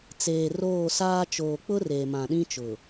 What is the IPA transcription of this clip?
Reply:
t͡s eː˨ r oː˦˨ s aː˦ t͡ʃ oː˨ k͡p ʊ˦ r eː˨ m ã˨ ɗ ĩ˦ t͡ʃ ʊ˨

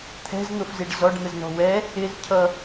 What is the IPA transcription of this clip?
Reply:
t̪ʰ ɛ̤ z n̪ ʊ f z i ɖ z ɔ ɖ n̪ ə z n ɔ̤ w ɛ | ɪ z cʰ ʌ

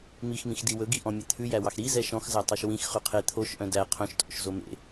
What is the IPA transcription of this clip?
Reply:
m i x m ĩ x d i w ɵ ɡ i ʔ ɔ̃ mʲ e t̪ʰ ʉ j æ w ɑ x ɾ i z ɛ ʃ ɔ̃ x z æ tˤ e ʃ w ĩ x χ ʉ qʰ e t̪ʰ o ʃ ʔ œ̃ d æ qʰ œ̃ ʃ tʼ o̰ ʃ z o m ḛ

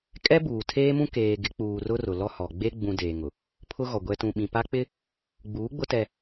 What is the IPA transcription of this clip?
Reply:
kʼ ɛ˦ b uː˨ tʰ eː˦ m ũ˦ k eː˨ ɡ ɪ˨˦ k͡p uː˨ r ʊ˦ r ʊ˨ l ɔ˦ h ɔ˨ ɡ͡b e˦ ɡ͡b ũ˨ d eː˨ ŋ ʊ˨ | pʰ ʊ˦ ɣ ɔ˨ ɡʷ ɛ˨ t ũ˨ ɓ ĩ˨ p a˦ k͡p ɪ˦ | ɡ͡b uː˨˦ ɡ͡b ʊ˦ t ɛ˦

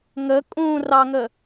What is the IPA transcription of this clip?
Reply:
ŋ ə kʼ ũ r ɑ ŋ ə

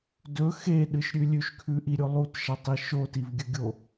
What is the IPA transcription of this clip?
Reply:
d ɵ x e ɗ ɨ ʃ ɾʲ ʉ lʲ ʉ ʃ kʰ ʉ ʔ i ɾʲ o lˠ u t ʃ ɐ tˤ i ʃ o t i v ɡʲ ɵ ɡʲ o

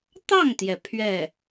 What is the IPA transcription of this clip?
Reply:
t̪ ɑ˥˩ ŋ t̪ j ɛ˩ pʰ ɥ ɛ˥˩

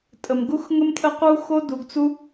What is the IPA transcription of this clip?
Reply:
tʼ ə˨ m ɡ u˦ x ŋ ə˦ m tʼ ə˦ q u˦ x o˦ d u˨ ɡ t͡s u˦

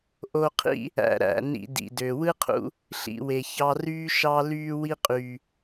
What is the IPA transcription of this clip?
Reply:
ʔ o˧ qʰ ḭ˦ | æ̰˧ ɾ æ̰˨ n ḭ˧ d ḭ˨ d ø˨ w ɯ˦ qʰ ṵ˧ | ɬ ḭ˧ w e˨ ç ɑ˧ r yː˦ ʃ ɑ˧ l yː˧ w i˦ qʼ yː˨

